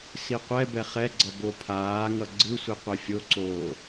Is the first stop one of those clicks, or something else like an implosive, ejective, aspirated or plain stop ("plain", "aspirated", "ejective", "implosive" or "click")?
plain